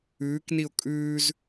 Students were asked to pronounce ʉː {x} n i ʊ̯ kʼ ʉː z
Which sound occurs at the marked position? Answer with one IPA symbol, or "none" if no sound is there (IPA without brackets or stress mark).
k